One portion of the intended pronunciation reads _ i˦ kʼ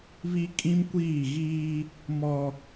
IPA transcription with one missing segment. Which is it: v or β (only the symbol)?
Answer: β